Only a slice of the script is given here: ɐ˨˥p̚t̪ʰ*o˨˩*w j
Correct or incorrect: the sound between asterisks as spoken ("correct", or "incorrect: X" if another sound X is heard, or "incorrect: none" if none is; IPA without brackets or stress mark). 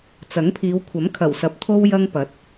incorrect: o˥